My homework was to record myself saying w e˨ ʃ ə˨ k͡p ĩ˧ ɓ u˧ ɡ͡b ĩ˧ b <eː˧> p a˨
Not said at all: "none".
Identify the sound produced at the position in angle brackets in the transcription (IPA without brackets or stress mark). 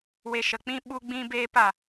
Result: eː˧